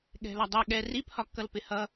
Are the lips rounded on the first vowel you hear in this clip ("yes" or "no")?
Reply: no